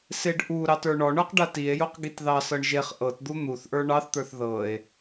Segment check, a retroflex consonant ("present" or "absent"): present